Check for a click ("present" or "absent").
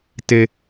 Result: absent